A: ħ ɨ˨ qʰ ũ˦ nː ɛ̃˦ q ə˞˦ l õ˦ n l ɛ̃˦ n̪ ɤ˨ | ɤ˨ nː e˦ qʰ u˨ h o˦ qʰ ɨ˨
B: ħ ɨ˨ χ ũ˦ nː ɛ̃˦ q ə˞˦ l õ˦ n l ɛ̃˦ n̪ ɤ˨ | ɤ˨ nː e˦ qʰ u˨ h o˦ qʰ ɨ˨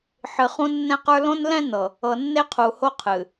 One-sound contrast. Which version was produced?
B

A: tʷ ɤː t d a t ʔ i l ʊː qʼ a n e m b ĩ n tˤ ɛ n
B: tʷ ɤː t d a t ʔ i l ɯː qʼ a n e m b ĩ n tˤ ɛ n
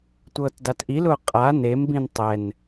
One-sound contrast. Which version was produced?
A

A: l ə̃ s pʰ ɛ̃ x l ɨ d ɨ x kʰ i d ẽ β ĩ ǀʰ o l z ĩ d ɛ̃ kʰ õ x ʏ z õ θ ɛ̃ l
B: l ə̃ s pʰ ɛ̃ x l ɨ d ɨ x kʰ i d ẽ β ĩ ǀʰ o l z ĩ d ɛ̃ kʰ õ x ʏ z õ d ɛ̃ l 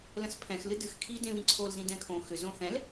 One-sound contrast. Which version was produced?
A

